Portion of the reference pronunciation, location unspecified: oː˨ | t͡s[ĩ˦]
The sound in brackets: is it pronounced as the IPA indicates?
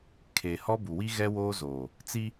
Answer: no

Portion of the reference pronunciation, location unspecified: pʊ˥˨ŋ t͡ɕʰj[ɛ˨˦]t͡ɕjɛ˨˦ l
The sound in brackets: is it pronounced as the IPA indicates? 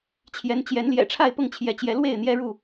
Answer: yes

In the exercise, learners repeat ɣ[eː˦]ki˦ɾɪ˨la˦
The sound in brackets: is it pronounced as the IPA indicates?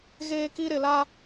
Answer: yes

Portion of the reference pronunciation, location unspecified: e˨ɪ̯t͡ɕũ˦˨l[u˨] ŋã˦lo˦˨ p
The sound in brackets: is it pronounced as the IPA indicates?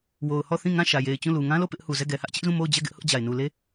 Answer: yes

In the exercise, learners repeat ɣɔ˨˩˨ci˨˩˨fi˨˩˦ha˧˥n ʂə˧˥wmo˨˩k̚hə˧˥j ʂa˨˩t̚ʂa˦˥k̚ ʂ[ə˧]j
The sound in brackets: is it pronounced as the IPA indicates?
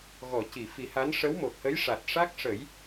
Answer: no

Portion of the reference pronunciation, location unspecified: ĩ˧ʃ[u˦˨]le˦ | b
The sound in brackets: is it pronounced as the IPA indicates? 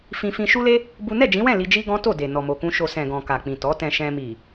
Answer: no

